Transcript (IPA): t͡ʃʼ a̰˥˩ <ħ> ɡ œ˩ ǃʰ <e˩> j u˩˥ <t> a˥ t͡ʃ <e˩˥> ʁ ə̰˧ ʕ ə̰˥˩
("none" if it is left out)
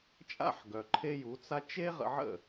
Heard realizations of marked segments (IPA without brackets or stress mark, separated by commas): ħ, e˧, t͡s, e˥